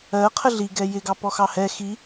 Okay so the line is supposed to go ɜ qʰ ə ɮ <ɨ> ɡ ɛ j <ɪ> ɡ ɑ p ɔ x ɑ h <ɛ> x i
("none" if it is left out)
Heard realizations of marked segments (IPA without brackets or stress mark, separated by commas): i, ɪ, ɛ